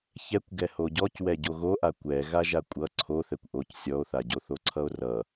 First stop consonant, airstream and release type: plain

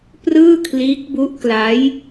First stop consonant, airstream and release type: plain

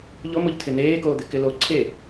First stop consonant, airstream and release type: aspirated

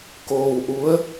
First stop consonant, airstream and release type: plain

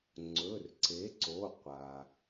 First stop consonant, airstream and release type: click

